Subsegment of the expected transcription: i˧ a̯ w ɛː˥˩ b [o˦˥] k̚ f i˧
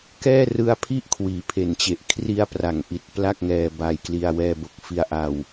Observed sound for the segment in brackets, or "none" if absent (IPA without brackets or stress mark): o˦˥